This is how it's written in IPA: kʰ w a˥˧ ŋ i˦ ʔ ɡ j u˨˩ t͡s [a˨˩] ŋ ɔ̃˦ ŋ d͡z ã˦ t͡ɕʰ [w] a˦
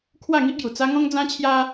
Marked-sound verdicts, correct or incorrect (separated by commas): incorrect, incorrect